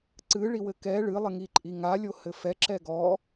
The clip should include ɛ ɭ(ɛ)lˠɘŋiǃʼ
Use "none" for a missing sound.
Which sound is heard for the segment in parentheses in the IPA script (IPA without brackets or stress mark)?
ɨ